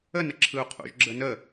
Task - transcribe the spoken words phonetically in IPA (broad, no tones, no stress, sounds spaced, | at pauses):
ə n ə ǁʰ ɯ u̯ qʰ ṵ ʒ ɡ͡ǁ ə n ə